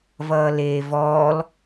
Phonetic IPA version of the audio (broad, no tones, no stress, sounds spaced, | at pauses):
v ʌː l eː v ɔː l